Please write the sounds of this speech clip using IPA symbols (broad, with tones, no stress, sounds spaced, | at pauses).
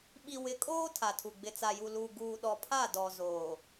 ɓ i˨ w ɪ˨˦ kʼ oː˦ tʰ a˨ tʰ u˨ ɡ͡b ɪ˨ t͡s a˨ j u˨ l u˨ ɡ uː˨ ɗ ɔ˨ pʰ a˦˨ d ɔ˨ z oː˨